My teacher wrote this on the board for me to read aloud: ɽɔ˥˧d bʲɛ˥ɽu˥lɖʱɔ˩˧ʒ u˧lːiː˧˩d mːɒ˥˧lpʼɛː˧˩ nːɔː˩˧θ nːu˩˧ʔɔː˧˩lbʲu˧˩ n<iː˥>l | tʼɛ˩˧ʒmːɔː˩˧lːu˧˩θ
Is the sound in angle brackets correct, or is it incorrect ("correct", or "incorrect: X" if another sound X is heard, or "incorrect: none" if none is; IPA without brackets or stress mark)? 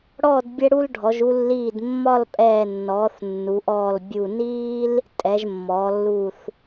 correct